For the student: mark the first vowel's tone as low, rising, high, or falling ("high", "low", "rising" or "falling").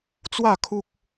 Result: falling